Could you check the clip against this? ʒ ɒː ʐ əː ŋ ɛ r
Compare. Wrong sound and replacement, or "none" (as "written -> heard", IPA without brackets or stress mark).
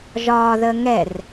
ʐ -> ð